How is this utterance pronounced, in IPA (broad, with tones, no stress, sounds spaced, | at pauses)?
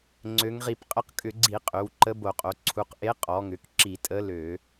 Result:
ŋ͡ǀ ø˩˧ ŋ ʁ i˧˩˧ p qʼ ə˧˥ q kʼ ʏ˧˩˧ ɡ͡ǀ i˧˩˧ qʼ ø˩˧ w ǃ ə˧˥ b o˧˩˧ qʼ o˩˧ ǀʰ u˩˧ q ʔ e˧˥ qʼ ɔ˩˧ ŋ ʏ˩˧ k ǁ i˧˩˧ tʼ ə˧˥ l ø˧˩˧